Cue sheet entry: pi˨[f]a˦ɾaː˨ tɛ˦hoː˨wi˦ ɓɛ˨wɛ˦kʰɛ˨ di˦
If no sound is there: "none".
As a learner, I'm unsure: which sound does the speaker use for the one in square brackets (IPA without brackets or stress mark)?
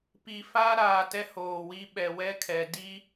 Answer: f